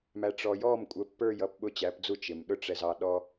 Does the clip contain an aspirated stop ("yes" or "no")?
no